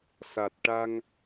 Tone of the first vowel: low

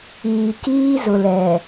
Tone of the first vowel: low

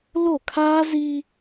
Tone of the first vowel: falling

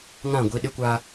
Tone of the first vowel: falling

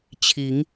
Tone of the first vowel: rising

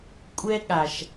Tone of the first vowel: high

